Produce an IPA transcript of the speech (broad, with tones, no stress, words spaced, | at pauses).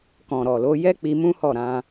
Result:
kɔ̃˨ɾɔ˨lo˨˦ jɛ˦k͡pi˧mũ˦ hɔ˦˨ɾã˧